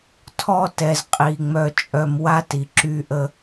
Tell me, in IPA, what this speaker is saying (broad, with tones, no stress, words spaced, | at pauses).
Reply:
tʰɔ˧ tɛ˩zqʼi˩ ŋ͡mœ˧t͡ʃʼœ˧m wa˥ti˩ ǁy˧ʔə˧